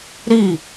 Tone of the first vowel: falling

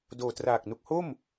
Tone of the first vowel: low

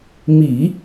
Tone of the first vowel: low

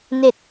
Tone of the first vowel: low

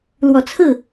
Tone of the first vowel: low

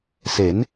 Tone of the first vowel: rising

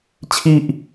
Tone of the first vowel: high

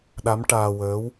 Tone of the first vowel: rising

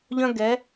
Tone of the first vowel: high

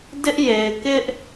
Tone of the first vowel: high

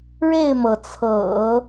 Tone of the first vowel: falling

